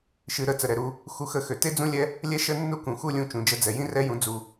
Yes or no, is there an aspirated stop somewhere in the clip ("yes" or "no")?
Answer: no